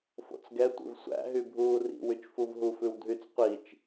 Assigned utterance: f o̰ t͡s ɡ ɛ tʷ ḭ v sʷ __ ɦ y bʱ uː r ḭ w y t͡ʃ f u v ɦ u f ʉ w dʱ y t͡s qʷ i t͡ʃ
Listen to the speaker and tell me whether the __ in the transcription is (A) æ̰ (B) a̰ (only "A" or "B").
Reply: A